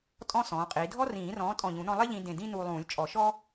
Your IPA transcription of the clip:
tʼɔ̃˥ sɔ̃ː˨˥qʼiː˨˥ dʱɔ˥rĩː˨˩˦rɔ̃ː˨˥ tʼɔ̃˧˩ʎũ˨˩˦nɔ̃˧ lˠe˥ʎĩ˧dẽ˧˩ dĩ˥nuː˧ lˠũː˨˩˦lʲt͡ʃʼɔ˨˩˦ʃɔ˥

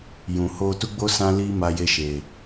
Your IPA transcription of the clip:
jũ˨ho˧tu˦ɡ͡bo˦ sã˦li˦ ma˧je˧ʃe˨

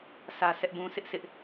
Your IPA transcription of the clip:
sʰä˦sʰɛ˦ʔbũ˦ sʰɪ˦ʔsɪ˦ʔ

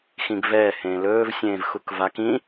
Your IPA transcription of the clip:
xĩɡvɛː hẽːlɵːv sʲẽːvxukvak ĩ

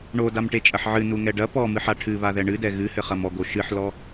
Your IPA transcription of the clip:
ɳodamʈet͡ʃʼɐħ ʕɨnuŋɛ ɖɐ pɔmɨħa ʈʰɨβaðɛ ɳɨdɛ ɣɨhɘχɐm ɔɡo ʃɨħlɔ

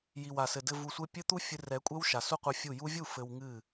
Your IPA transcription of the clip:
ji˨w a˨sɘ˨dɘ˧ vu˧sʷe˦ pʲɘ˦t̪u˦ fʲɨ˧rɛ˨˦kʷʼɛ˦w ʃa˨su˦qʷɛ˧fʲu˦˨ ju˧vʲu˦˨ fɘ˧wŋɨ˦˨

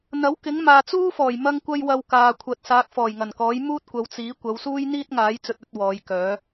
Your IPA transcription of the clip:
n̪ɐ˨˥wkɪ˨˥ŋ maː˨t͡suː˥fɔː˨˩j mɐ˥ŋkʷɐ˥j wɐ˧wkaː˨kʷʰɐ˨˥t̚ saː˨˥k̚fɔː˨˩jŋɐ˨˩nkɔː˨˥j muː˥t̚kʷɐ˨˧wt͡siː˨˥ kʷɐ˨˧wsuː˥j n̪iː˥t̚ŋaː˨˥j t͡sɵ˧t̚ɵ˨˥t̚ wɔː˨˧jkœː˨˥

